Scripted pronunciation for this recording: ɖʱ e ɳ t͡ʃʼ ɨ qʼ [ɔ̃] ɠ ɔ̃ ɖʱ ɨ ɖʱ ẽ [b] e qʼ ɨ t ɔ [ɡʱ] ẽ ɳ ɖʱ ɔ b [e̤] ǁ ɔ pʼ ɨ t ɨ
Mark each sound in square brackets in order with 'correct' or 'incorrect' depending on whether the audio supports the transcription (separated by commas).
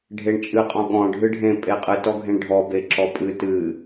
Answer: correct, incorrect, correct, incorrect